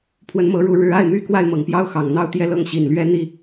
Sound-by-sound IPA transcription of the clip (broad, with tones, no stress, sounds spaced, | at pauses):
pʰ w ə˧˥ n m ɤ˧˥ ɻ u˧˥ ɻ ɻ̩˧˥ a˥˩ ɪ̯ m y˥ k w a˥˩ ɪ̯ m ɤ˨˩ ŋ p j ɑ˥ ʊ̯ x ɑ˨˩ ŋ n̪ ɑ˥ ʊ̯ t̪ j ɛ˥˧ l ɤ˥˩ ŋ ɕ i˨˩ n l ɥ ɛ˥ n̪ i˥